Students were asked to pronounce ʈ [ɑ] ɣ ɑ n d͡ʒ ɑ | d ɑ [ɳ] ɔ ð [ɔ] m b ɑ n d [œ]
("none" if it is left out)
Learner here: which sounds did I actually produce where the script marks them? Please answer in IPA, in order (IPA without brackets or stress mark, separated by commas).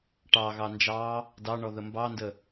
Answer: ɑ, ɳ, ə, ə